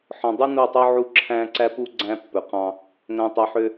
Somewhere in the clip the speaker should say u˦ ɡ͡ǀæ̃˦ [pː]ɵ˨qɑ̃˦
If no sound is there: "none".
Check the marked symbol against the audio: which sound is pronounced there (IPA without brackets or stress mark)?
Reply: pː